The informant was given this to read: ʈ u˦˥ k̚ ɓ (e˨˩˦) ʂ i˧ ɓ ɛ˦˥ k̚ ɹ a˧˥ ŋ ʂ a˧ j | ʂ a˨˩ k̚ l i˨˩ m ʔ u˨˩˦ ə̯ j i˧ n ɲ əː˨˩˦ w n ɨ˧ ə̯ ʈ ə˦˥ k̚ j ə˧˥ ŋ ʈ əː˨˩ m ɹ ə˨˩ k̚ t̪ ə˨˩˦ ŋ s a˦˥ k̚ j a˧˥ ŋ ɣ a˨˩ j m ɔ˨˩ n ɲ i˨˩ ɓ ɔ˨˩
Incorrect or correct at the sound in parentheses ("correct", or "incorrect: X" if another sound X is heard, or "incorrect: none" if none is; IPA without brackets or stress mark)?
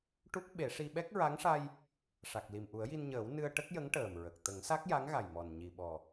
correct